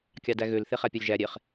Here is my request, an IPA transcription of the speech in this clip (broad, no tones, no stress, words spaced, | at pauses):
kʲɑdæɣøl θeχæpʲɑlʲʒæ ɾʲeχ